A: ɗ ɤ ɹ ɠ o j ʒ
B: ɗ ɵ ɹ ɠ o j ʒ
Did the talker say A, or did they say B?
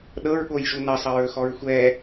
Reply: A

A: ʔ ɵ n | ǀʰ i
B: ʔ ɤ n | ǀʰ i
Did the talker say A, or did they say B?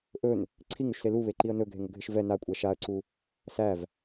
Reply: A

